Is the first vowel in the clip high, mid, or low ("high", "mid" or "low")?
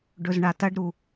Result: mid